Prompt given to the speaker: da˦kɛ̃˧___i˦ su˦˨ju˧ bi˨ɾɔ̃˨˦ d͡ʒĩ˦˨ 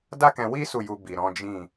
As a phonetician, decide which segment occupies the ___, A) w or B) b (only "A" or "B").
A